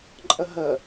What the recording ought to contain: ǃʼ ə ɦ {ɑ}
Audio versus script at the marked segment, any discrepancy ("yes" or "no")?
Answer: yes